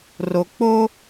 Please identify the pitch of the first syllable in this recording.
low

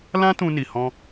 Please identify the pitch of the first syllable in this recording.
high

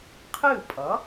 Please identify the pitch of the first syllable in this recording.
falling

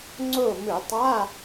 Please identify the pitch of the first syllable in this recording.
falling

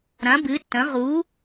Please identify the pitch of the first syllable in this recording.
rising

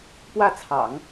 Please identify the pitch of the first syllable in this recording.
falling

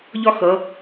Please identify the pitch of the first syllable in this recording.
high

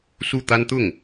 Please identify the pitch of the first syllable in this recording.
falling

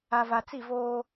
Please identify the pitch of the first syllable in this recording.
low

